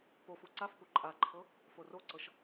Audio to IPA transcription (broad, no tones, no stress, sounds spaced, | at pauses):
p o f u ǀ a f p u ǃʼ a ǃʰ ɤ | f o r o ǀ ɤ ʃ